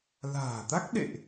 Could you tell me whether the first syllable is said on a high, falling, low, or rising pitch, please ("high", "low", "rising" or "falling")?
low